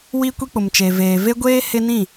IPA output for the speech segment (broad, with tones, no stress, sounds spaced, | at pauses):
w i˦ kʷ i˦ k͡p ʊ˨ m t͡ʃ e˨ v eː˨ v e˦ ɡʷ eː˦ h ɪ˦ n ĩ˦˨